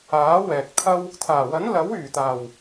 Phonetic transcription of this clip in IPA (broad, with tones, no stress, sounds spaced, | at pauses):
aː˨˥ w ɛː˨ k̚ t̪ʰ ɐ˥ w | t̪ʰ aː˨˩ w ɐ˨˥ n l ɐ˨˥ w yː˨˩ t̪ aː˨˩ w